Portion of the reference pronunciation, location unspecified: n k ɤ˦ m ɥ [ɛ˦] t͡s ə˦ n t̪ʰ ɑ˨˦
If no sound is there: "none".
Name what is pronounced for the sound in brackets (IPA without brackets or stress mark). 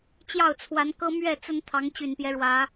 ɛ˥˨